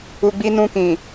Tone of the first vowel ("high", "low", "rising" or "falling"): low